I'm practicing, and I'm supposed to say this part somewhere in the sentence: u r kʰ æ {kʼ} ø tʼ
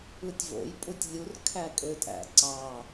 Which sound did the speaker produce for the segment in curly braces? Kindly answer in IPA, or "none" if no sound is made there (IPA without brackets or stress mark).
kʼ